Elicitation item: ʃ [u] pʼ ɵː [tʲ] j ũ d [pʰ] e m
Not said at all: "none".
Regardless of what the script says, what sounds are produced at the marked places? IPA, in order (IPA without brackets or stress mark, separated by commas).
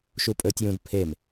u, tʲ, pʰ